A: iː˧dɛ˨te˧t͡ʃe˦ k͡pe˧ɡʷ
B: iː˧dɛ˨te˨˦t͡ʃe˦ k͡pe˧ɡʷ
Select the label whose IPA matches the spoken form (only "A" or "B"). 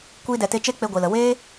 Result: A